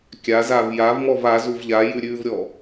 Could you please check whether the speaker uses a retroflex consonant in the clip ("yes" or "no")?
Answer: no